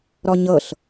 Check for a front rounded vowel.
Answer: absent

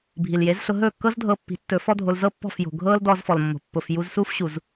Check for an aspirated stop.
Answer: absent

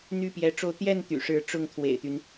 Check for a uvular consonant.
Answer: absent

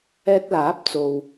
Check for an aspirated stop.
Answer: absent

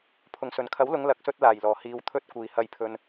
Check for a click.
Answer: absent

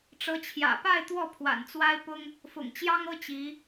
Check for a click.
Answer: absent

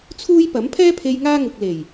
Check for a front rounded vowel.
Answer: absent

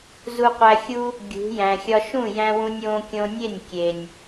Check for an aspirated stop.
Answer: absent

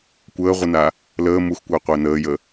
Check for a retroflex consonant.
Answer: absent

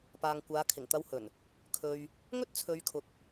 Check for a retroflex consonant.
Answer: absent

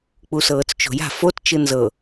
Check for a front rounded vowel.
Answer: absent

